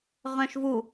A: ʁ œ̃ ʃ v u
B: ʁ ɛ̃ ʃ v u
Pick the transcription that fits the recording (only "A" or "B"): A